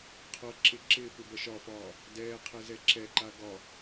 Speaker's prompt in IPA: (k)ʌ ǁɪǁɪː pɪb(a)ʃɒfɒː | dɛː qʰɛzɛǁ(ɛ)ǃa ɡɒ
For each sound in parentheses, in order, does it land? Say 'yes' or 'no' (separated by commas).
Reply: no, no, yes